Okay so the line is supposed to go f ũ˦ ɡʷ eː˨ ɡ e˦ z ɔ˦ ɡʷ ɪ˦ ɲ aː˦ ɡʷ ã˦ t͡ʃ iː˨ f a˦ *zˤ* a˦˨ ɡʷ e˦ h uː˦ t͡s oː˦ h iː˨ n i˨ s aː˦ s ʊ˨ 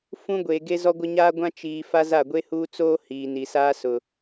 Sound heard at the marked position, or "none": z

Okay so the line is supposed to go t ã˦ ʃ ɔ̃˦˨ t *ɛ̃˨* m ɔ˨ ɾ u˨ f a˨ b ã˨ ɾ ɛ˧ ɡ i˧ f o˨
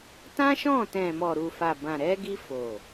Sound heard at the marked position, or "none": ɛ̃˨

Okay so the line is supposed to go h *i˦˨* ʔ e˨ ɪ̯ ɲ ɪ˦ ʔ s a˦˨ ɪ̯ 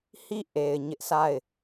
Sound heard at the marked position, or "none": i˦˨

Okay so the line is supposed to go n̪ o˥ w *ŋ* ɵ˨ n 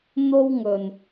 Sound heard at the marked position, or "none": ŋ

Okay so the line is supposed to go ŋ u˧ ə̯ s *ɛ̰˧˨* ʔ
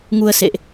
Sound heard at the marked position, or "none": ḛ˧˨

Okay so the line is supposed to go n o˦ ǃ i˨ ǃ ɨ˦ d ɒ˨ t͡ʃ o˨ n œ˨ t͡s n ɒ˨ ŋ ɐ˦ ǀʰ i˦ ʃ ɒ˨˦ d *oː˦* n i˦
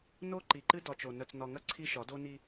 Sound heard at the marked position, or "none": o˦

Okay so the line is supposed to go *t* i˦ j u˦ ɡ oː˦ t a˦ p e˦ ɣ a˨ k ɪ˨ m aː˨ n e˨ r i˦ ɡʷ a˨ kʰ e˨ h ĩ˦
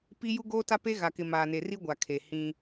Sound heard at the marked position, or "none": p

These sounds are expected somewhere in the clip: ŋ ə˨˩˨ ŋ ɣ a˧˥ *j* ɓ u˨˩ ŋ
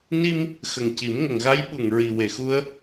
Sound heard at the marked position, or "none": j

